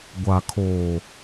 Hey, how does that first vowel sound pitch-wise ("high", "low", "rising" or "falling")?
low